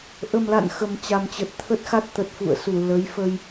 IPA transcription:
ʔ ə˨˩ m l a̰˧˨ n x ə˨˩ m t͡ɕ a˨˩ m t͡ɕ ə˨˩ t̚ t̪ʰ ə˦˥ t̚ x a˦˥ t̚ t̪ ə˨˩ t̚ f ṵ˧˨ ə̯ s u˧˩ l ə˨˦ j f ə˧ j

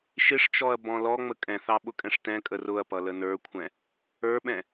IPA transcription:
ʃ ɪ ʂ t͡ʃ ɔ ɐ̯ b ɔ̃ l ɔ ŋ͡m ə kʼ ɛ̃ θ ɑ ɓ ʊ kʼ ɛ̃ ʂ t ɛ̃ kʼ ə r ʊ ɐ̯ p ʌ l ə n ə˞ kʷʰ ɛ̃ | ə˞ ɓ ɛ̃

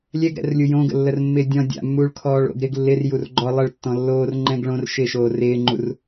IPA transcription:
lʲ ɛ ɡ ɾ ɛ̰ r lʲ u j õ ɡ ə̰ lː ə r mː ɪː dʲ ɔ̃ dʲ a̰ mː uː ɭ kʰ ɔː ɭ o̰ ɡ ɾ ɪ ɡ lː ɪ r j u r ɡ͡ǃ ɔ lˠ ə ɭ tː ɔ̃ lː oː r ŋ͡ǃ ɛ̃ ɡ ɭ õ r ʃ ɪ ʃ oː r ɪː ŋ͡ǃ u r

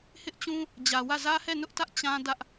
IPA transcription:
h ɪ˦ ʔ t͡ɕ ũ˦ | d͡ʑ ä˨ w ä˦˨ z ä˦ h ɛ˦˨ n ʊ˦ ʔ t ä˦ ʔ t͡ɕ ã˦ d ä˦ ʔ

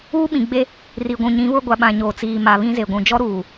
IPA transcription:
uː˦ ɓ ĩ˨ ɡ͡b e˦ | r i˨ ɡʷ ũ˨ ɲ ĩ˨˦ β ʊ˦ ɡʷ a˨ ɓ ã˨ ɲ oː˨ t͡s iː˨ m a˨ β ĩ˦ z e˨ ɡʷ ũ˨ d͡ʒ ɔ˦ ɾ uː˨

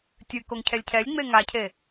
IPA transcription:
tʲ ɨ k o ŋ cʰ ɛ lʲ cʰ ɛ lʲ ŋ͡m e ŋ a cʰ e

